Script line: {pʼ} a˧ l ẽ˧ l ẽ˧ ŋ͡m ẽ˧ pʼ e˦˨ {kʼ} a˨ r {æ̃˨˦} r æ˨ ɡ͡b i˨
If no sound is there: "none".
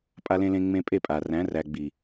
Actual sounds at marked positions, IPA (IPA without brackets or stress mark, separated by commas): pʼ, pʼ, æ̃˨˦